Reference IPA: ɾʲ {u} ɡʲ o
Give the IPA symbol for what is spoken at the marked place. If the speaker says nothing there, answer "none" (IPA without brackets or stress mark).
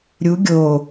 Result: u